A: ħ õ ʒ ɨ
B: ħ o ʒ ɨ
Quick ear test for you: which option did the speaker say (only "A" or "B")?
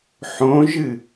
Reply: A